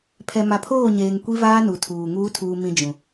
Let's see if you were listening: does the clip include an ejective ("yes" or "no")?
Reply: no